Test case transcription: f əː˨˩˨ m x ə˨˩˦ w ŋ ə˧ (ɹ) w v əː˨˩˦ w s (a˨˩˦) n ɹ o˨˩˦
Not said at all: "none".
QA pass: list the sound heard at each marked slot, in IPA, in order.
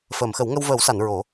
none, a˨˩˨

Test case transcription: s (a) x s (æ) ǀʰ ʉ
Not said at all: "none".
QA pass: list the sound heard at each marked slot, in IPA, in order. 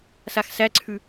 a, æ

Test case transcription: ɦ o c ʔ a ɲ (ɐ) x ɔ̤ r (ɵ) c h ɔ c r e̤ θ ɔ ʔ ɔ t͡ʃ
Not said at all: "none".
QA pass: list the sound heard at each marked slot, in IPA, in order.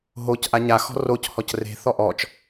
a, o

